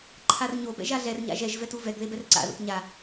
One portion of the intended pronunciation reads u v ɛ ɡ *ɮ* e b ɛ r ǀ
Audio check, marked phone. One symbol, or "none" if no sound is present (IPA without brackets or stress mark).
ð